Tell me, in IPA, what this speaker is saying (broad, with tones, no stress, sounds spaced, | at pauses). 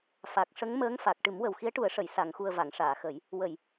f a˨˩ k̚ ʂ ə˧˥ ŋ m əː˧˥ ŋ f a˨˩ k̚ ʈ ɨ˨˩˦ m w ə˨˩ w x i˧˥ ə̯ ʈ u˨˩˦ ə̯ ʂ ə˨˩˨ j s a˨˩˨ ŋ x u˨˩ ə̯ v a˨˩˨ ŋ ʂ aː˨˩˨ x ə˨˩˦ j | w ə˨˩˨ j